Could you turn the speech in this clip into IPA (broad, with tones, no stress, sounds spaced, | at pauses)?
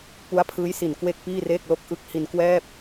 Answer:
p u˦˥ a̯ pʰ ɯː˦˥ j s i˨˩ n k w e˥˩ k̚ p iː˥˩ r eː˥˩ k̚ l o˥˩ k̚ ʔ ɯ˦˥ k̚ h i˧ n k w ɛː˥˩ p̚